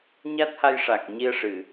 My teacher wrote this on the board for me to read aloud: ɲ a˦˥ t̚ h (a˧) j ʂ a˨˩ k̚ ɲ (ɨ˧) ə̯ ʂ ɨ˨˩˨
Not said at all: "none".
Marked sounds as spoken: a˧, i˧

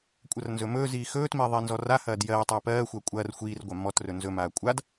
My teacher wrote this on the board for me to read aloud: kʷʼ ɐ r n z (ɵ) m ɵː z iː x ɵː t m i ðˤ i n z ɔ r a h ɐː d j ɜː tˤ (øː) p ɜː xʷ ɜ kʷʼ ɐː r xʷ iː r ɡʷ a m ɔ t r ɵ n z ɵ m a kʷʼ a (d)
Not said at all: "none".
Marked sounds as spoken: ɵ, ɵː, d

